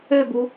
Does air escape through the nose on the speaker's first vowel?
no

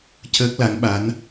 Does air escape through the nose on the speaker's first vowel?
no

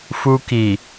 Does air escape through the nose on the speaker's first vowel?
no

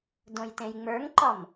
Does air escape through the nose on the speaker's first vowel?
yes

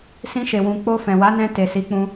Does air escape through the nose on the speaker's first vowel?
yes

